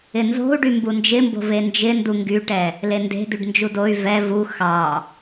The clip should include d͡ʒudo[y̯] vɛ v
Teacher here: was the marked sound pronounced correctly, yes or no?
yes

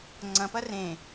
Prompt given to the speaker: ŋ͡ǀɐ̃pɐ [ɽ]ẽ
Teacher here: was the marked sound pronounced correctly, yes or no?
no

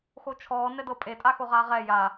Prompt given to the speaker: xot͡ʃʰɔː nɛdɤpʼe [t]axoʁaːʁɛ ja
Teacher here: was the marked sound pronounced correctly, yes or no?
no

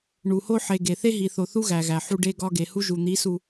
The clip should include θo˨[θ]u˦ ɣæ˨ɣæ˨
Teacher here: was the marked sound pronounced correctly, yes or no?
yes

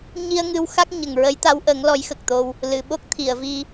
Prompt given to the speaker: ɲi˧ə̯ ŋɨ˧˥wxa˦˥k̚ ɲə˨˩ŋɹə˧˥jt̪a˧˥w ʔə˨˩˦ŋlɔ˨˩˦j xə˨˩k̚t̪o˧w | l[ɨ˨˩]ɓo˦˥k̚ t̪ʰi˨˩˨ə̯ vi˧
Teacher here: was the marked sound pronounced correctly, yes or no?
no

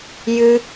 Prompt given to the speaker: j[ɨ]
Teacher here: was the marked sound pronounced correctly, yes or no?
yes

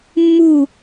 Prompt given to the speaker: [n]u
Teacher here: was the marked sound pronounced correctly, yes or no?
no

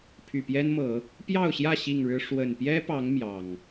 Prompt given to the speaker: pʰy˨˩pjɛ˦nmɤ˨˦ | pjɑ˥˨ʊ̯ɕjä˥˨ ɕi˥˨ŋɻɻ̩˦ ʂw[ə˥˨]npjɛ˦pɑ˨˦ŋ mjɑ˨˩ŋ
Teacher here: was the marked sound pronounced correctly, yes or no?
no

